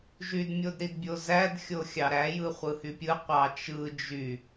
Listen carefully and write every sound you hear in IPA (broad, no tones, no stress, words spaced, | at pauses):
ʒydmʲodɾidbʲo zædxʲo xʲɑɾæ jɯχʷɯhypʲɯ qʷɑt͡ʃɯ d͡ʒy